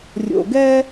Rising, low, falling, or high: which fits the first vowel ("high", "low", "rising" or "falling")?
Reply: low